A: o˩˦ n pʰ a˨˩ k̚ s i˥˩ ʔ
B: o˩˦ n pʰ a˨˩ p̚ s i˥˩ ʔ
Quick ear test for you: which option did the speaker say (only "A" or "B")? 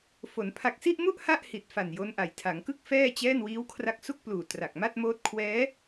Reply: A